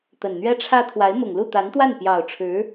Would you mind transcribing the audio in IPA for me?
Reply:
t̪ ə˨˩ n n̪ ɥ ɛ˥ ʈ͡ʂʰ ä˥ t̪ʰ w a˧˥ ɪ̯ m ʊ˨˩ ŋ l u˥˩ t̪ a˧˥ n t̪ w a˥˩ n p j ɑ˨˩ ʊ̯ ʈ͡ʂʰ ɻ̩˧˥

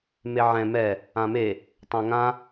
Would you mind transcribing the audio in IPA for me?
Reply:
m e ʕ ɛ̃ m ɛ | ã m e | tˤ ã ŋ ã

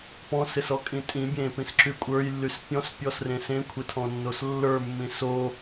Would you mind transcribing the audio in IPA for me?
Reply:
p ɔ̃ s ɪ s ɔ kʼ ĩ tʼ ĩ bʲ ẽ p ĩ s ǁ y kʷʼ ə˞ j lː y s pʲ ɔ̃ s pʲ ɔ s r ẽ s ẽ kʷʰ ɪ tʰ ɔ̃ nː o s lː ə˞ mː ĩ s o

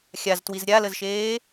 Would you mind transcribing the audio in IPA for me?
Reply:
xʲ a z t w i z ɾʲ a l ə z ʃ eː

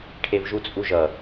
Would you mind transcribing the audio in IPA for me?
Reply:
ʈʰ e v ʒ u t͡sʼ u ʒ ʌ

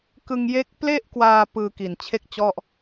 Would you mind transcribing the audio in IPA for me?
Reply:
k ɯ˧ ŋ j e˦˥ k̚ p l e˥˩ ʔ k w aː˧ p ɯː˧ k i˨˩ n t͡ɕʰ e˥˩ k̚ t͡ɕ ɔ˥˩ ʔ

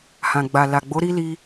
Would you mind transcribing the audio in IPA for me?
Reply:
h ã˨ ɡ͡b a˨ l a˨ ɡ͡b o˨˦ ɾ i˦ l i˧

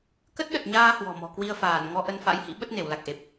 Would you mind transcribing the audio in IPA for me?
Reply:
k ə˦˥ t̚ ɗ ə˨˩ t̚ ɲ aː˧ h w ɔ̤˨˩ m ɔ̤˨˩ k w i˧ ə̯ f aː˧˩ n ŋ ɔ˧ ʔ ə˧ n f a̰˧˥ j h ḭ˧˥ ɓ ə˦˥ t̚ n e˧˩ w l a˨˩ k̚ ʔ e˨˩ p̚

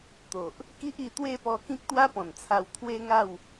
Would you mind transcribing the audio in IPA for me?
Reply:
t̪ o˨ ʔ | k i˦ ʔ i˧ t̪ w e˥˧ p ɔ˧ k ĩ˦ k̚ t̪ w a˦ p ɔ̃˨˩ n t͡sʰ a˧ w t̪ʰ w e˦ ŋ a˥˧ w

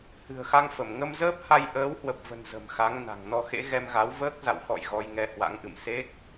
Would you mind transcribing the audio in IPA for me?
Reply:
h ɨ̤˨˩ ə̯ x a˧ ŋ f ə˧˩ m ŋ ə˧ m z əː˦˥ p̚ h a˧ j ʔ əː˨˦ w h w ə˨˩ p̚ v ə̤˨˩ n z ə̤˨˩ m x a˨˦ ŋ n a̤˨˩ ŋ n ɔ˧ x ḛ˧˥ ɣ ɛ˧ m ɣ a˨˦ w v əː˦˥ k̚ z a̰˧˨ w x ɔ̰˧˨ j ɣ ɔ˧ j ŋ ɛ˧ h w a̰˧˥ ŋ ʔ ɨ̰˧˨ m s e˦˥ k̚

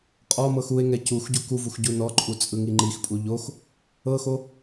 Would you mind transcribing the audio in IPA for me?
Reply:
qʼ ɔ m ɤ x u e̯ ŋ ɛ c u x ɟ u k u v u x ɟ u n ɔ ǃʼ u t͡sʼ ɯ ŋ i ŋ͡ǃ i x pʼ u ʎ o x | ɤ x o

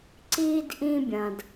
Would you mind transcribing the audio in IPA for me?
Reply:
ǀ iː˥ d ʔ ĩː˥ bʲ ɐ̃˧ d

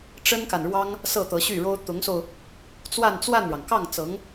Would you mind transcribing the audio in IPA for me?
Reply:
ʈ͡ʂ ə˥ n k a˨ n ɻ w ɑ˥ ŋ | s ɤ˥˩ t̪ ɤ˧˥ ɕ y˥˩ ɻ o˥ ʊ̯ t̪ ʊ˧˥ ŋ s o˧ ʊ̯ | t͡s w a˥˧ n t͡s w a˥˩ n ɻ ɑ˩ ŋ k ɑ˥˩ ŋ t͡s ɤ˧˥ ŋ

